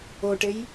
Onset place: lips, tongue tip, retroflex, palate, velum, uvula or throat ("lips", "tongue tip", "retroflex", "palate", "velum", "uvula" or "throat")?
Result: retroflex